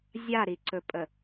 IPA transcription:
zʲ a ɾ i ǀ ɵ pʼ ə

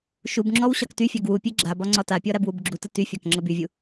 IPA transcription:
ʃ u b ŋ͡ǁ ɔ w ɕ ɒ k t y fʲ a ɡ w u pʲ e ɡ͡ǁ a b ɒ ŋ͡ǀ ɒ t a pʲ ɔ ɾ a b w u b ɡ͡ǁ u t ə t y fʲ ɒ k ŋ͡ǁ ə b y vʲ u

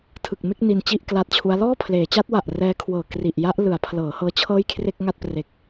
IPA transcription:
tʰ ɯ˨˩ k̚ m e˥˩ k̚ n i˧ n t͡ɕ i˥˩ ʔ k l a˦˥ t̚ t͡ɕʰ u˦˥ a̯ l ɔː˥˩ pʰ l eː˩˦ t͡ɕ a˦˥ t̚ w a˨˩ ʔ r ɛː˦˥ kʰ w ɤː˨˩ k r i˨˩ ʔ j a˦˥ ʔ l ɯ˩˦ a̯ pʰ l ɤː˩˦ h ɤː˦˥ t͡ɕʰ ɤː˥˩ j kʰ r e˥˩ k̚ ŋ a˥˩ t̚ p r e˨˩ k̚

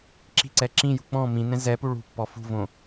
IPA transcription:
ǁ i̤ ǀ ɛ ǁ ĩ j ṳ k͡p ɔ̃ m ĩ n ɛ̃ z ɛ p u ɭ ṳ pː ɔ f ṳ v õ

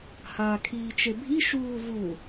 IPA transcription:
h aː kʰ iː t͡ʃ e bʱ i ʃ uː v u

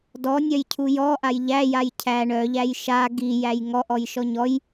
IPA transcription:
d ɔ nʲ œ j cʰ u j ɔ ʔ a j ʎ æ j a j cʰ æ ɳ œ ʎ æ j ʃ a ɡ i j æ j ŋ ɔ ʔ ɔ j ʃ ɔ ɲ ɔ j

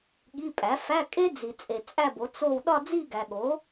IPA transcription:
ɠ i˧˥˧ pʼ æ˩˥ f æ˧˥˧ kʼ e˥ d͡z i˨ t͡sʼ e˨ t͡sʼ æ˥˧ b o˩˥ t͡s o˥˧ w ɗ ɒ˥˧ d͡z i˥˧ ɡ æ˨ ɠ o˩˥

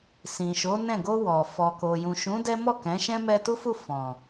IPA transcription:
s ĩ˨ ʃ o˨˦ n ɛ̃˦˨ ɡ o˧ w ɔ˨ f ɔ˨ k o˨ j ũ˨ ʃ ũ˨˦ d ɛ˦ m ɔ˦˨ k ɛ̃˨˦ ʃ ɛ̃˦ m ɛ˧ t u˦ f u˦˨ f ɔ̃˨

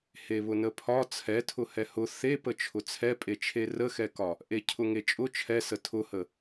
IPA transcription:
h e β ʊ n ə pʰ ɒ t͡sʰ ɛ tʰ ʊ h ɛ h ʊ θ e p ə t͡ʃʰ ʊ t͡sʰ ɛ pʼ e t͡ʃʰ e r ə x ɛ k ɒ | ʔ e cʰ ʊ ŋ e t͡ʃʼ ʊ t͡ʃʰ ɛ s ə tʰ ʊ h ə

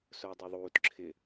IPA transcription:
s ʊː dˤ ɛ ðˤ uː t ǁʰ ɪ

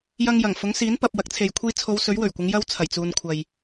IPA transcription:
j ɐ˧ ŋ j ɐ˨˩ ŋ f ʊ˨˥ ŋ s iː˨˥ n p ɐ˨ p̚ w ɐ˨˥ k̚ t͡sʰ e˨ j kʷʰ iː˧ t͡sʰ o˨˧ w s ɵ˨˥ ɥ w ɵ˨˩ ɥ kʷ ɪ˨˧ ŋ j ɐ˧ w t͡sʰ ɐ˨˩ j t͡s uː˨ n kʷʰ ɐ˨ j

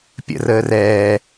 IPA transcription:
pʲ ə̰ r əː r ɛː

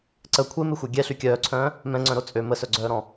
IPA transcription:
ǀ ə kʷʰ e m e xʷ ɛ ɡʲ ɛ ɬ y kʲ œː ǀʰ œ̃ː | m ɛ̃ ŋ͡ǀ œ̃ ɾ o t͡sʼ ø m ə s œ ɡ͡ǀ œː ɾ ɔ̃

